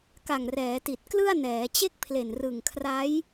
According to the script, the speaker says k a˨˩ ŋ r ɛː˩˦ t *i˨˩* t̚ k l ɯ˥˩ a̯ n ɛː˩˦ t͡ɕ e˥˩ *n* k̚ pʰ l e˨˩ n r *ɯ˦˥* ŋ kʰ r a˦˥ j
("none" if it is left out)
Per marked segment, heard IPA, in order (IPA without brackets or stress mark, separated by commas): i˨˩, none, ɯ˨˩